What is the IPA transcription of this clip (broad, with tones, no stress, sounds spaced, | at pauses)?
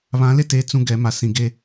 β ã˨˦ l e˦ t eː˨ t͡s ũ˦ ɡ ɛ˨˦ m a˨ s ĩ˨ ɡ e˦